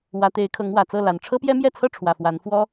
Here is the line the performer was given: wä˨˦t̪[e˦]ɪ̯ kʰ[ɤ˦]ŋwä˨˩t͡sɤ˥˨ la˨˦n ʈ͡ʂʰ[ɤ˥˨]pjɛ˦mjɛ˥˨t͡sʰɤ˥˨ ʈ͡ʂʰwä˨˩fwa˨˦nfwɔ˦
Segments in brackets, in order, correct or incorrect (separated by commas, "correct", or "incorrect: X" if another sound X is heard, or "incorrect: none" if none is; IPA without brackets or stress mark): incorrect: e˨˦, incorrect: ɤ˨˦, incorrect: ɤ˦